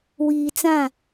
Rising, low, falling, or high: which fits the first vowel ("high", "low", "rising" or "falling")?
low